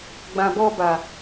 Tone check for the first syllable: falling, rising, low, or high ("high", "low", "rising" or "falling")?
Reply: low